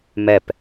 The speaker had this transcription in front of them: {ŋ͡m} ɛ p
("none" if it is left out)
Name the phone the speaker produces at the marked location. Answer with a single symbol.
m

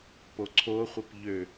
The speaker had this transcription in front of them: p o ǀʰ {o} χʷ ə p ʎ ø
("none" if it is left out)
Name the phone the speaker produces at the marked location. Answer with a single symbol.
o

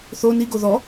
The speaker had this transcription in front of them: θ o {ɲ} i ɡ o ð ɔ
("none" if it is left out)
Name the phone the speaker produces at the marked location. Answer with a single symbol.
n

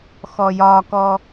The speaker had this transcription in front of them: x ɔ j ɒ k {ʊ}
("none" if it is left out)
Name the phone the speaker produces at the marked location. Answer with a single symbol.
ɔ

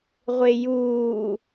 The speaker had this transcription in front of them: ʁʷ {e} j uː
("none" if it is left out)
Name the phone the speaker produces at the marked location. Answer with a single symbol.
e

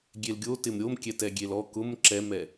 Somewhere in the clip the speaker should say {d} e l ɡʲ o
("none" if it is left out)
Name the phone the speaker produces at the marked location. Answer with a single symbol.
ɡʲ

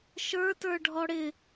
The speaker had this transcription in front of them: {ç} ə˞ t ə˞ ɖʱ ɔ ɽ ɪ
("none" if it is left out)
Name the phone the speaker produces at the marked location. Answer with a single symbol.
ʃ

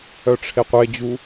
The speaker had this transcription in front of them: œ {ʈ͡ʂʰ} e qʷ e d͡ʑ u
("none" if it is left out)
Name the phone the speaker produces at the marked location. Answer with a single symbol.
ʈ͡ʂʰ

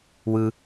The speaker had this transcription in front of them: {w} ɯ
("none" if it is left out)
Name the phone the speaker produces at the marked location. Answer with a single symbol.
w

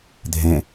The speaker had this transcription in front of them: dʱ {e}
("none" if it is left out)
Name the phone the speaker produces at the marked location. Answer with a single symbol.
ẽ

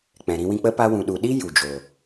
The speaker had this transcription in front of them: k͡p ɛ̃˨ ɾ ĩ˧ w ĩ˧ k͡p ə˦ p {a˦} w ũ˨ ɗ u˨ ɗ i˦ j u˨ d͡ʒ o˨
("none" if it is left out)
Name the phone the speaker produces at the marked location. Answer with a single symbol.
a˦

